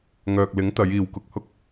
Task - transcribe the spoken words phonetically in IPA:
ŋœː˨k̚lɪ˨˥ŋt̪ɐ˨˧j iː˨wkʊ˧k̚hʊ˥k̚

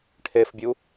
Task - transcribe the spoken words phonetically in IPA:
ʈʰefbʲu

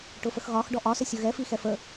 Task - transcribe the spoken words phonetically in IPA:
ʈʊfəxɣɒx ɖɔʔɒsə sʲʊɣɛfi xɛfə

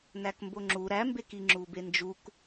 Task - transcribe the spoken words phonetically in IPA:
nækmboŋ͡ǁu ɾæmbeki ŋ͡ǁubend͡ʒuk

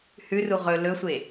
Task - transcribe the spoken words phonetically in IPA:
hʉru ʁɵ lɵsʷe

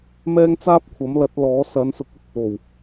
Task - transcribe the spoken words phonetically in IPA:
mɛː˥ŋt͡saː˥p̚kʷʰɐ˨˥mlɐ˨˥t̚ lɔː˨˥ sɐ˨˧nsʊ˨˥k̚ɵ˥t̚ | o˨˩w

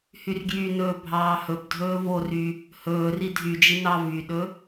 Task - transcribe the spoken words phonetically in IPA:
hyrɡjynɵː bʱɑːhɵbdʱɵː vory | hɵːri dʱyd͡ʒi nɑvyɗɵ

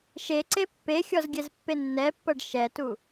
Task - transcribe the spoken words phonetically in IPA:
ʃeǀe pːexʲɔzɡʲɛzpːe nːɛpːɤɖ ʃɛtu

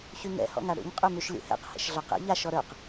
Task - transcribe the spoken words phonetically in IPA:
çyŋɛ̰ hɔ̰ŋaɽṵɲ qʼymyʃlʲṵhɛ̰q hɛ̰ʃɮɒqɛ̰ ʎaʃ ɔɾə˞q

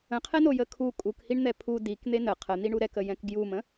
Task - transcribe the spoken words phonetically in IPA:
ə̃qʰɛno jəkʰu kʼukhiɳ n̪ɛpʰu dikn̪e nə qʰən̪iɳu ɾɛkə jɛ̃kɡjumə̃

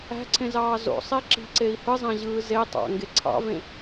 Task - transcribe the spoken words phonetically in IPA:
æ̤ǀʰẽzɑː zo̰sˤe ǁi̤ǀei̯ hɯzˤæ̃ʑɯː ze tˤɑ̰ŋɡe ǀʰɑ̰vẽ

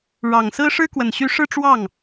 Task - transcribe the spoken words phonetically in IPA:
ɻɑ˨˩ŋsɹ̩˥ ʂɻ̩˥kwə˨˩nɕy˧˥ ʂɻ̩˥˧ʈ͡ʂwɑ˥˩ŋ

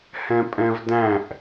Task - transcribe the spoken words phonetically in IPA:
hɛ̃pʼɛ̃vdæ̃ʔ

